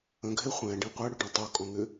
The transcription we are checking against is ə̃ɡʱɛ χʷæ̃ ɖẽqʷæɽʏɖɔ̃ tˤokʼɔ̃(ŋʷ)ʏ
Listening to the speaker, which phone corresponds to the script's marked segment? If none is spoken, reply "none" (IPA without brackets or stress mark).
ŋ